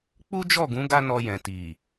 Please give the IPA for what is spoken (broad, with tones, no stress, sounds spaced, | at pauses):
k͡p u˦ d͡ʒ ɔ˦˨ ɡ ũ˨˦ ɡ a˦ n ɔ˧ j ɛ̃˨ t i˨